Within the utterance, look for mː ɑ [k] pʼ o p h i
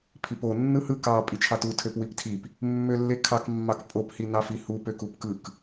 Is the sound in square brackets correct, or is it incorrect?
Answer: correct